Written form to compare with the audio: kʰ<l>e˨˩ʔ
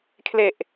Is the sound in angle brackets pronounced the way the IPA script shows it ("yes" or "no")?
yes